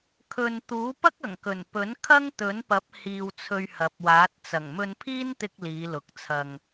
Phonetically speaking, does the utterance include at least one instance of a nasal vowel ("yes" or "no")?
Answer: no